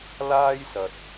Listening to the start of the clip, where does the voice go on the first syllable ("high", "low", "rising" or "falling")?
high